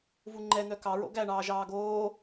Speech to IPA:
v u ŋ͡ǃ ɛ n̪ œ k ɑ ɹ o̰ ɡ æ ɳ ɑː ʒ ɑː ɡ oː

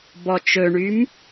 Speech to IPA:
b ɔ t͡ʃ ɵ ɳ y m

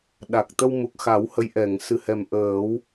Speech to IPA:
ɗ a˨˩ k̚ t̪ ə˧ w m u˨˩ k̚ x a˨˩˦ w h ə˧˥ j ʔ ɛ˨˩˨ ŋ s ɨ˨˩ h ɛ˨˩ m ʔ əː˨˩˦ w

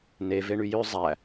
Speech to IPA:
n e v e ɳ y j ø zˤ æ

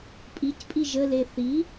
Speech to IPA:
pʼ i c pʼ i ʒ ə l e θ i

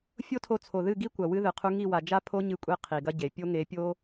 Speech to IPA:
fʲ o˦ tʰ o˧ t͡sʰ o˨ ð ɨ˦˨ ɡ i˦ kʷ ɐ˨ w ɨ˧ ð ɨ˨ qʰ u˧ ŋ i˦˨ w a˨ d͡ʒ a˦ pʰ o˦ ɲ ɨ˧ kʷʼ e˧ qʰ i˨ ɡ ɐ˦ ɟ e˨ pʲ o˧ ŋ e˨˦ pʲ o˦

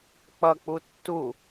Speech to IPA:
k͡p ʌ k͡p u tː u

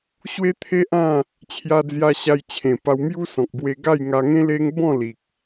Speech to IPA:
ɕ w e˦ t̪ʰ e˦ ʔ ã˥˧ | t͡ɕʰ j a˧ d͡z j a˧ ɕ a˧ j t͡ɕʰ ẽ˨˩ p a˧ w m j u˦ s ɔ̃˨ k̚ b w e˧ ɡ a˥˧ j ŋ a˧ ŋ ẽ˦ l e˦ ŋ b ɔ̃˥˧ l i˨ k̚

